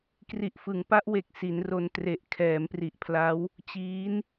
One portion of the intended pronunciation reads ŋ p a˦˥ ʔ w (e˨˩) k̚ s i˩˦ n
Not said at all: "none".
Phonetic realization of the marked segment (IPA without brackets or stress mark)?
e˨˩